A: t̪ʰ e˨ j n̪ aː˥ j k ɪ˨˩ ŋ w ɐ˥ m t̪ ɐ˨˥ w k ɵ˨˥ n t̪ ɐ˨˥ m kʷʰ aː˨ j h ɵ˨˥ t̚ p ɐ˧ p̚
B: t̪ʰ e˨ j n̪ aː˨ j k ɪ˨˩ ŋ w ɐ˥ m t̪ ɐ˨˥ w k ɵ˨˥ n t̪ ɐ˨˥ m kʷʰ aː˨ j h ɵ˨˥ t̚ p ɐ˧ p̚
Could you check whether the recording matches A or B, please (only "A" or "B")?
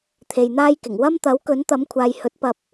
A